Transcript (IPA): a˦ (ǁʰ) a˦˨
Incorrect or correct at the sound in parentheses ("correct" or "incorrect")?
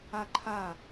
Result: incorrect